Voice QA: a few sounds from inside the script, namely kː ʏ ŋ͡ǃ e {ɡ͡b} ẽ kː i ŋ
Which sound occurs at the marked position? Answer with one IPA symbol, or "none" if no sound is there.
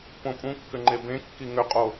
b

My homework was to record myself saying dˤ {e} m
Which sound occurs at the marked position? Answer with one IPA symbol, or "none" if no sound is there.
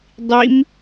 i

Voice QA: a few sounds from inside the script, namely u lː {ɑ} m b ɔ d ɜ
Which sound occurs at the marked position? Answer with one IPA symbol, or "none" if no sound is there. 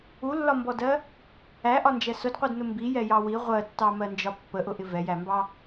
ɒ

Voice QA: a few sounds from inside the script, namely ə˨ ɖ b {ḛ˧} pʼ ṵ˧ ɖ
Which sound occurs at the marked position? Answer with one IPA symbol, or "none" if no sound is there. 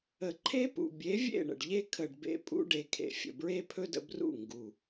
ḛ˧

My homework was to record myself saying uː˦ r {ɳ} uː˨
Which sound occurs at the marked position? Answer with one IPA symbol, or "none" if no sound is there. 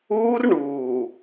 ɳ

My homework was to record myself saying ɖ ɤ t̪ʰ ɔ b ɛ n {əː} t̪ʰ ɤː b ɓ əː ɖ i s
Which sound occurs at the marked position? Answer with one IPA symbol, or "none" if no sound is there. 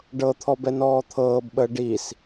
ɔː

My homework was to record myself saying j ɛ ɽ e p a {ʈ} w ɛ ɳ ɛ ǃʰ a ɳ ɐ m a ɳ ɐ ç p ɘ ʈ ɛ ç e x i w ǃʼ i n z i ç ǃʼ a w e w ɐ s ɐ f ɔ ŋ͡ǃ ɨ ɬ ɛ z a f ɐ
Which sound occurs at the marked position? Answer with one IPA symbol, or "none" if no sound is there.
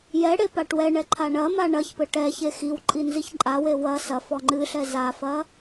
ʈ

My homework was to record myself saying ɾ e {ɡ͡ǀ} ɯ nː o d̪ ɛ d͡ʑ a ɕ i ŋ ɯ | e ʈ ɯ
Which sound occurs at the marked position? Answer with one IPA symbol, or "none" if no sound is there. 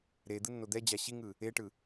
d̪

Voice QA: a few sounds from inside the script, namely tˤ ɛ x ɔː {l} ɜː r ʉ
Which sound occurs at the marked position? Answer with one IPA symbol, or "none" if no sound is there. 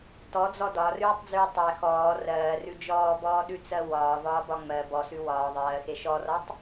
r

